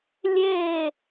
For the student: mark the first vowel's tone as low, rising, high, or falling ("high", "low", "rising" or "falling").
falling